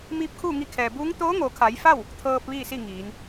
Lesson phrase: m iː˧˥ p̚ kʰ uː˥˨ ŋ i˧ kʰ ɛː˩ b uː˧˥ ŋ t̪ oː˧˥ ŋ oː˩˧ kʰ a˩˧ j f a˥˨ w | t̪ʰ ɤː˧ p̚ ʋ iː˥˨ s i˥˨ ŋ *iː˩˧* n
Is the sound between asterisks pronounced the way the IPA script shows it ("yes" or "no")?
yes